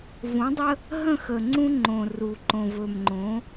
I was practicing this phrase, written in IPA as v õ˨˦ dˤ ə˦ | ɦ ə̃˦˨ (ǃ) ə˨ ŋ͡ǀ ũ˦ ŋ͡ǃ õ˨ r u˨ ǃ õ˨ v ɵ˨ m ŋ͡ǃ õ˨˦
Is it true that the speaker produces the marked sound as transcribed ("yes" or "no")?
no